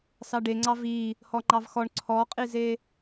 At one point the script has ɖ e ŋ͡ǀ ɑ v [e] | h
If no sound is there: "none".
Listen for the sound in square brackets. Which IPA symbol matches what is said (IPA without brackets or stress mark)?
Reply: i